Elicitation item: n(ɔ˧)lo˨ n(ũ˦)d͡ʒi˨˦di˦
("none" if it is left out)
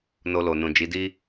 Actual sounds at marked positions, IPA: o˧, ũ˨

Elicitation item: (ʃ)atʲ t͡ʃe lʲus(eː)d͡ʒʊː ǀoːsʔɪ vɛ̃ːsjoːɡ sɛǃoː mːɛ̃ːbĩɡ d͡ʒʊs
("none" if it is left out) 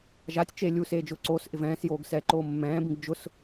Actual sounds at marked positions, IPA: ʒ, eː

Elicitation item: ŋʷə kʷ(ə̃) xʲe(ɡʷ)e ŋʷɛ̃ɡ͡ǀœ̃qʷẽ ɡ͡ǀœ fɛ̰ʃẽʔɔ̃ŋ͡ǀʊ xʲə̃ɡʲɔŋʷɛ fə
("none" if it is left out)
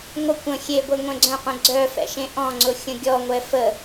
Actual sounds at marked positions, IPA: ə̃, ɡʷ

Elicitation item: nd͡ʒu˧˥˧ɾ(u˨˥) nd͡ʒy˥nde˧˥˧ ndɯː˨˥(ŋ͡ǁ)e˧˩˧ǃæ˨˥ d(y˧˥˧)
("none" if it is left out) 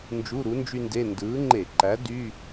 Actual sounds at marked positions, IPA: u˨˥, ŋ͡ǃ, y˧˥˧

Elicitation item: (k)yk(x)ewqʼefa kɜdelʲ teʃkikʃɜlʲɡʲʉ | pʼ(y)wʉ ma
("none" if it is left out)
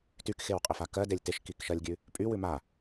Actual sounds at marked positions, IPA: t, x, y

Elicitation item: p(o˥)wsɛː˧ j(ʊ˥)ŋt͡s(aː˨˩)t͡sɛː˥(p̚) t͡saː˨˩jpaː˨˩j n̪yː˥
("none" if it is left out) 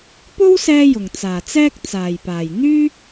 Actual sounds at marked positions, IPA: o˥, ʊ˨˩, aː˨˩, k̚

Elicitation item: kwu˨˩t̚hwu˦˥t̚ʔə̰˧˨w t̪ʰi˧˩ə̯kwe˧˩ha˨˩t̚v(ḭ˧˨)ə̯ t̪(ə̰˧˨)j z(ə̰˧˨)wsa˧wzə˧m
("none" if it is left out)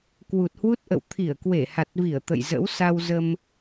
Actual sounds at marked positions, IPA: i˧˩, ə̰˧˨, ə̰˧˥

